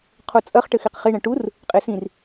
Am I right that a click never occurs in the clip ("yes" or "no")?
yes